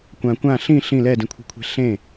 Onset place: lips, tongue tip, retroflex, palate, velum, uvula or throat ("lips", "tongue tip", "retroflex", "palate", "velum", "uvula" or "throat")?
velum